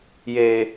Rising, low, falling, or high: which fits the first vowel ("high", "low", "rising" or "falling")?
low